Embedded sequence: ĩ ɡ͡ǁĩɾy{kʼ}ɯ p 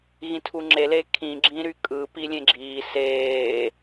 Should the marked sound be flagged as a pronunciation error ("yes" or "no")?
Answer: no